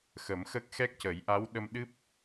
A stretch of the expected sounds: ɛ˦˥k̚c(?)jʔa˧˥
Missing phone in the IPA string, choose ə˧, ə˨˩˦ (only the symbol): ə˨˩˦